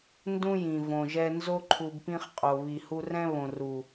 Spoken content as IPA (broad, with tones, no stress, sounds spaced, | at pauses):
n d ũ˦ j ĩ˨ v õ˨ ʒ ɛ˧ n z o˦ ǃʰ u˧ b p ĩ˦ χ qʼ o˨ β i˨ h u˧ r ɛ̃˦ β õ˨ r u˨